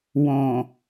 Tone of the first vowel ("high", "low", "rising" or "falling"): low